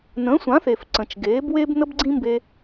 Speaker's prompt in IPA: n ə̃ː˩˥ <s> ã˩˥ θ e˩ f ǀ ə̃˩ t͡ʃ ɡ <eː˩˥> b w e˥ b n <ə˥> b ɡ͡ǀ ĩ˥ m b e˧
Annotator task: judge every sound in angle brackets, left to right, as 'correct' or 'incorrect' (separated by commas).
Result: incorrect, correct, correct